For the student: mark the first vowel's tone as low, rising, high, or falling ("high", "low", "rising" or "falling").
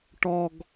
high